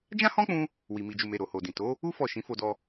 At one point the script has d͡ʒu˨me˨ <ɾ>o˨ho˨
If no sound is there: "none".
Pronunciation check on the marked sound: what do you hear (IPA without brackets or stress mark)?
ɾ